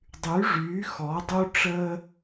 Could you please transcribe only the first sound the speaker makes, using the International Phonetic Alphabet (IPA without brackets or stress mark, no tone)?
dˤ